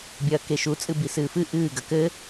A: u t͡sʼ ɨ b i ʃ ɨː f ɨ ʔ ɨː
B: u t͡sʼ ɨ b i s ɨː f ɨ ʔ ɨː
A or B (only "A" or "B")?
B